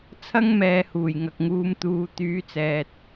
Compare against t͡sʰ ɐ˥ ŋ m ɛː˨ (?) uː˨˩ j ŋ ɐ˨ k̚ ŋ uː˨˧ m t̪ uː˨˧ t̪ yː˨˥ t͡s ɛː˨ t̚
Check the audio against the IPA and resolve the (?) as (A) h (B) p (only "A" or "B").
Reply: A